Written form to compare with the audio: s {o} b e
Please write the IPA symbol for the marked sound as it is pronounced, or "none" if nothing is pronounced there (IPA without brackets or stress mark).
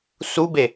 u